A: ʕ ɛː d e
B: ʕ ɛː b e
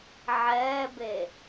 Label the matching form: B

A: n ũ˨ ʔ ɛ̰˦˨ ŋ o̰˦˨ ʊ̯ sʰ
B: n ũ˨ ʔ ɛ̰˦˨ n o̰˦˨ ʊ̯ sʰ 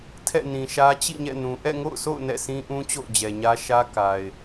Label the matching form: A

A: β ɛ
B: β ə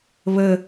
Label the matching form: B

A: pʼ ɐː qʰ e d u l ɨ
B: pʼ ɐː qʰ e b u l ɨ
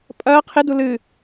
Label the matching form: A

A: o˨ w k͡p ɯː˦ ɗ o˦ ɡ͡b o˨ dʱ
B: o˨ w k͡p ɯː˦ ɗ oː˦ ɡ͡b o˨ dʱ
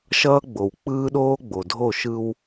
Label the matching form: B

